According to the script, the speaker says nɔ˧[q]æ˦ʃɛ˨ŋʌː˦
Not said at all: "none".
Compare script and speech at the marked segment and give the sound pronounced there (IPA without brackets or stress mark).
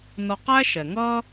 q